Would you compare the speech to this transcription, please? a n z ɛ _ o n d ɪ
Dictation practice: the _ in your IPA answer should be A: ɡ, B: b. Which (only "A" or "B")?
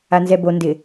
B